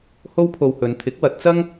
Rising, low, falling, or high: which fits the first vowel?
high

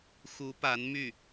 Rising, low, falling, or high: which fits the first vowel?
rising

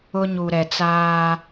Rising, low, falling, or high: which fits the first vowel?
high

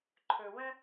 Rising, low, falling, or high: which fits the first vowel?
low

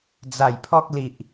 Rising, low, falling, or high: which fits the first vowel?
low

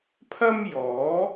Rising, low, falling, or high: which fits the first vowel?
high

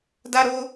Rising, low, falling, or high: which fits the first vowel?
high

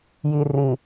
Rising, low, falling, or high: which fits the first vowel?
low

